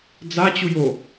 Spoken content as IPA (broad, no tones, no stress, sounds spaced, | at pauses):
d͡z a t͡ɕ u j o